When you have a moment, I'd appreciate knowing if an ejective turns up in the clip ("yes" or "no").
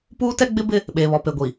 no